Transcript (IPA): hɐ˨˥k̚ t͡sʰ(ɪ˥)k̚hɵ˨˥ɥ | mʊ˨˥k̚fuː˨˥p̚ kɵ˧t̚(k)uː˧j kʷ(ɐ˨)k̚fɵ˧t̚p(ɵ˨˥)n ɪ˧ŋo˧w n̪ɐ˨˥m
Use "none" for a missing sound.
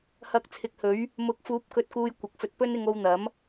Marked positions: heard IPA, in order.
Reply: ɪ˨˥, k, ɐ˨, ɵ˥

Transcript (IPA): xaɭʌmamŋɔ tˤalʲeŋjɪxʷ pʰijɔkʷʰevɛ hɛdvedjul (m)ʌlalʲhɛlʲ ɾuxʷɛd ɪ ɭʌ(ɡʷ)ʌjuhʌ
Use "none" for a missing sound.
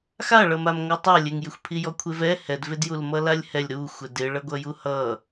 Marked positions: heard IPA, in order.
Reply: m, ɡʷ

